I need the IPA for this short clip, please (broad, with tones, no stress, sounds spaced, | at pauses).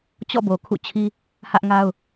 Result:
t͡ɕ ɔ̰˦˨ b o˨ kʰ ṵ˦˨ t͡ɕʰ i˦ | h ä˦ ʔ ŋ a˦ ʊ̯